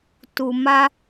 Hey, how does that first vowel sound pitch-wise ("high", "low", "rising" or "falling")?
low